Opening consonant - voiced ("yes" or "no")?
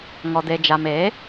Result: yes